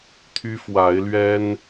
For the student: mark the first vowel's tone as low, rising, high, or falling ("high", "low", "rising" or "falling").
high